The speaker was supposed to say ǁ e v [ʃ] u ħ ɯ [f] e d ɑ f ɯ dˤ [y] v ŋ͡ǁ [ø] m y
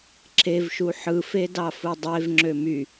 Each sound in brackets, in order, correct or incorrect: correct, correct, incorrect: e, correct

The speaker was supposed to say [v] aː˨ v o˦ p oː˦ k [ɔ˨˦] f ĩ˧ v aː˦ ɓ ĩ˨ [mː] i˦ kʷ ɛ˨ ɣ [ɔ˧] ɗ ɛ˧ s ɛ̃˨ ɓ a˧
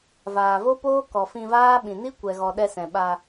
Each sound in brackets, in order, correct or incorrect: correct, incorrect: ɔ˨, incorrect: n, incorrect: ɔ˨

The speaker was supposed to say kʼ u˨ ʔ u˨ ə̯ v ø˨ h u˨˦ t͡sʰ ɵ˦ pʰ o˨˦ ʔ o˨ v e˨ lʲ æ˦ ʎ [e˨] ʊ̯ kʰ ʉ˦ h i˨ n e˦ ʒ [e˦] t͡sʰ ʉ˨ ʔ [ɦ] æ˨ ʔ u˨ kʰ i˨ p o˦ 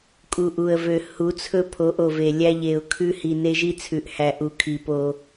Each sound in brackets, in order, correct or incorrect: correct, incorrect: i˦, incorrect: h

